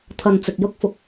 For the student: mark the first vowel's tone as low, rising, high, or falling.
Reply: low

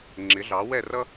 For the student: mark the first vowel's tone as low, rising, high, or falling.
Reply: rising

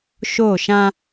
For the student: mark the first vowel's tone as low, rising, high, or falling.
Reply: falling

